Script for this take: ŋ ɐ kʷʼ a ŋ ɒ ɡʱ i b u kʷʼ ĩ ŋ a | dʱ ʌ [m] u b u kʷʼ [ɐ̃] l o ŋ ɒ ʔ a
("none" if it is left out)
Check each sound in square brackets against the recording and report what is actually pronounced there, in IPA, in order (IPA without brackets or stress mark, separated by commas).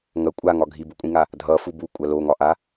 f, ɐ